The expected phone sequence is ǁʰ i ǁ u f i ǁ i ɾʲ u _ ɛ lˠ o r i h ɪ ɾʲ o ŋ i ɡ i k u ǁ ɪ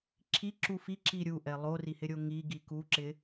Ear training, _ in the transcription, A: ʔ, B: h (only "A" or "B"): A